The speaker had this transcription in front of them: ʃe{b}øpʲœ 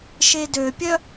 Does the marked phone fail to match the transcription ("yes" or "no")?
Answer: yes